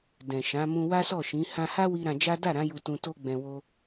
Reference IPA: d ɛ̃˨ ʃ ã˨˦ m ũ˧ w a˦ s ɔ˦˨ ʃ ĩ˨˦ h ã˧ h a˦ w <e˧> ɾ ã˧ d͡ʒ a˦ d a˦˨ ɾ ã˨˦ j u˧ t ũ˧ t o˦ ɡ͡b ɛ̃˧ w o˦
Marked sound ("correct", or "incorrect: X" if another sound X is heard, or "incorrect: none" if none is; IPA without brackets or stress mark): incorrect: i˧